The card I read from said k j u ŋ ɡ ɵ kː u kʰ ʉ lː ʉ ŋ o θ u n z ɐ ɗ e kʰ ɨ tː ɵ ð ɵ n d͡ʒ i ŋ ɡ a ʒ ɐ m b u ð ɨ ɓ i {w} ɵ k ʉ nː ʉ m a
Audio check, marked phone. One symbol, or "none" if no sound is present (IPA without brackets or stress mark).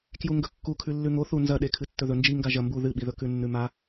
ð